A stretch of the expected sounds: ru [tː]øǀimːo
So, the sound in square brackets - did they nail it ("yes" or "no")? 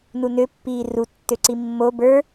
yes